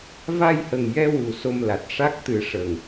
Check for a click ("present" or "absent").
absent